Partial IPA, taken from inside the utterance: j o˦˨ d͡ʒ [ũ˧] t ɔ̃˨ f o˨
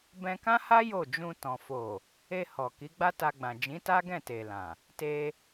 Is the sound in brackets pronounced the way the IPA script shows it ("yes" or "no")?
yes